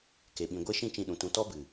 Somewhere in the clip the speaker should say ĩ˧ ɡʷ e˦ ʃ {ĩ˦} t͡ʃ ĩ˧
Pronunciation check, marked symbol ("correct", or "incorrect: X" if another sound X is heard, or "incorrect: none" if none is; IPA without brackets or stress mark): correct